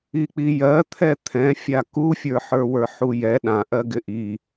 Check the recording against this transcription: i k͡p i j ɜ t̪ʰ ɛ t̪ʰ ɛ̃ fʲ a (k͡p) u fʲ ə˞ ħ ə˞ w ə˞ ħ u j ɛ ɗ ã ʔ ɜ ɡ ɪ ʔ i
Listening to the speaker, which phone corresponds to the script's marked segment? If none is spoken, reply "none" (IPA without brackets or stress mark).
k